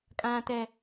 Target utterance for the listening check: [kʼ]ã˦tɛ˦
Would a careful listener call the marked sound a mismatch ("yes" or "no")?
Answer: no